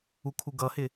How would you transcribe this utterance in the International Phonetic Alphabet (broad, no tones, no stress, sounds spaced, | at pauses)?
u kʰ u ɡ ʌ h ɪ